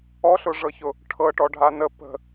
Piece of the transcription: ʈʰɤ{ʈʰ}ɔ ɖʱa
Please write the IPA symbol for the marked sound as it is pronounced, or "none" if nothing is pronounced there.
ʈ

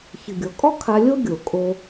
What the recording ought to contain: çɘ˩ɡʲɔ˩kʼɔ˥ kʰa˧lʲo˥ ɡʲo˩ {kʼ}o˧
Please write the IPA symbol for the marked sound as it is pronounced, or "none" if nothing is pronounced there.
kʼ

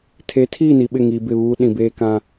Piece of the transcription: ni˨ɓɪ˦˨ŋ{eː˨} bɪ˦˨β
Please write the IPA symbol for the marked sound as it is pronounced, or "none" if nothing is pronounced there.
iː˨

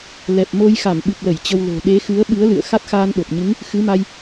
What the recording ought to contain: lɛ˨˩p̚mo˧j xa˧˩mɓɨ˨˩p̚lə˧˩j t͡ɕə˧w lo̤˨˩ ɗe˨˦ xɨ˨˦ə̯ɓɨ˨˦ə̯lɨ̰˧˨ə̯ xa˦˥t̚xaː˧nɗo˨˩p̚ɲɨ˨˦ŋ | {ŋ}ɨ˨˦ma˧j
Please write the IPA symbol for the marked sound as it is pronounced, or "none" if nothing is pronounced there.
x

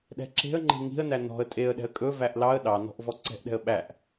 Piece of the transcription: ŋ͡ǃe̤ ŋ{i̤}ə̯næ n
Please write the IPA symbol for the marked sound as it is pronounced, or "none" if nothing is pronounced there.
i̤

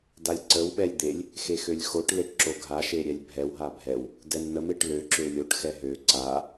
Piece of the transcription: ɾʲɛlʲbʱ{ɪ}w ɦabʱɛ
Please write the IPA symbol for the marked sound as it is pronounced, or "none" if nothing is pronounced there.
ɛ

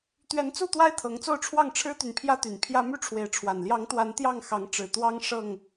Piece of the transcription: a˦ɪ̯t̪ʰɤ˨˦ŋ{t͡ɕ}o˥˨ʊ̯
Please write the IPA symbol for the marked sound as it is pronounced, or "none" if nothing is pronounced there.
t͡s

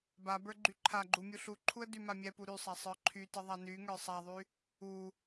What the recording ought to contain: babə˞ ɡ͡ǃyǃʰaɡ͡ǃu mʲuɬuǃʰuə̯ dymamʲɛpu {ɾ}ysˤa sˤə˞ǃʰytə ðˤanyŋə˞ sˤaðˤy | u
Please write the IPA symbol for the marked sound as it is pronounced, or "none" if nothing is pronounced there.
ɾ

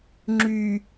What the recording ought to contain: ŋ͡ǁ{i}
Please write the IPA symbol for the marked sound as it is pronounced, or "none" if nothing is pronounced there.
y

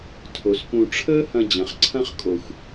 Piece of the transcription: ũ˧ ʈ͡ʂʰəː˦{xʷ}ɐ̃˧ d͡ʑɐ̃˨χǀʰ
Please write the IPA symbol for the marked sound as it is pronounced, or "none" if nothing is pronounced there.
h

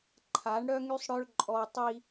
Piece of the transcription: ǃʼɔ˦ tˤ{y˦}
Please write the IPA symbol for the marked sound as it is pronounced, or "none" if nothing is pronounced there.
i˦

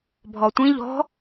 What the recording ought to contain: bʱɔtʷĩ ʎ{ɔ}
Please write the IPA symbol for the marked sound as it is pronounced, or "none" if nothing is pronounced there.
ɔ̤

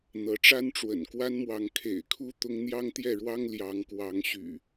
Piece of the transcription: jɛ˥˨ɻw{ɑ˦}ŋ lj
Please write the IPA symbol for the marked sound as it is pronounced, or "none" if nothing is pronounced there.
ɑ˦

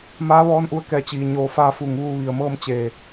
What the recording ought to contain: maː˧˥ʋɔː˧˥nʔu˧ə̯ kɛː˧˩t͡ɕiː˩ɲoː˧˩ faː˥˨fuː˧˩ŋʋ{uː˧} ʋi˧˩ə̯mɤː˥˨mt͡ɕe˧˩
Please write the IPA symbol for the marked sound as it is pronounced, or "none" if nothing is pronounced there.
uː˥˨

